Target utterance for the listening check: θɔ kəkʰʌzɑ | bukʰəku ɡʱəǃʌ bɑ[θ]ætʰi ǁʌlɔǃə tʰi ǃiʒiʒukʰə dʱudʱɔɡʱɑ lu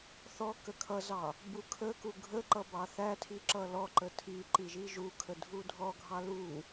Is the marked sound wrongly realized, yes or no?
no